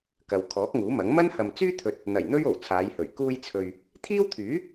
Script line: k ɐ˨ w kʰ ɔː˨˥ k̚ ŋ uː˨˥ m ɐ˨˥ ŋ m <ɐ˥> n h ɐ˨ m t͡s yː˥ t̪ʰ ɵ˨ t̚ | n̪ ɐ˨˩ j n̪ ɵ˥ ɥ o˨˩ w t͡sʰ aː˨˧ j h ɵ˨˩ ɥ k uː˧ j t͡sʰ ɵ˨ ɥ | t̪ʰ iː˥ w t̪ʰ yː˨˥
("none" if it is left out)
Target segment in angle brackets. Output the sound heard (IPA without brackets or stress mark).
ɐ˥